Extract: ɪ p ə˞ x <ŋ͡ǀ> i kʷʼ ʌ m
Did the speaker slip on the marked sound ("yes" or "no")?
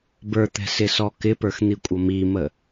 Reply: yes